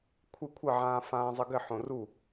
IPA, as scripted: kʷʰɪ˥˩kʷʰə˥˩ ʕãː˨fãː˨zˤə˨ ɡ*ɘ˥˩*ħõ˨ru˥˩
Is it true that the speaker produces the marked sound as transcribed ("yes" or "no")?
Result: yes